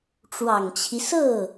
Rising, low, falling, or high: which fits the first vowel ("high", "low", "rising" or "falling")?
low